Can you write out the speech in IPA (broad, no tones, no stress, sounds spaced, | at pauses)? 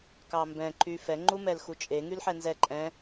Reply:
k ɑ m b ɛ̃ ǃ y f ɛ ŋ͡ǃ u m ɛ l x u t͡ʃʼ e ŋ y l ħ ɛ n z ɛ ǃʼ ɛ̃